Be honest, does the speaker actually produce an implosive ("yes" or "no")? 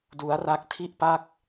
no